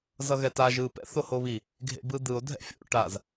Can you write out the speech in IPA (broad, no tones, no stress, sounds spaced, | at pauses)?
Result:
z ʌ ɣ ɛ t a ʒ ɯ p ɛ̰ θ o h o β i | ɡʱ ḛ b ɯ d̪ ɯ o̯ dʱ ɛ̰ fʲ o̰ ʈ a z